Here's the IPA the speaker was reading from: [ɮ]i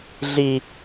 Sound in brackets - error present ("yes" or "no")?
no